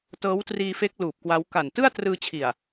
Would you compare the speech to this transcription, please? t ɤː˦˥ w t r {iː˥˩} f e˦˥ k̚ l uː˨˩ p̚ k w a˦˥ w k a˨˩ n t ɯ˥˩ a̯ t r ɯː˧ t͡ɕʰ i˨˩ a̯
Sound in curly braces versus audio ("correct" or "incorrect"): incorrect